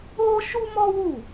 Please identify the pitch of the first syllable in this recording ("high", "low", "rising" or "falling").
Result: high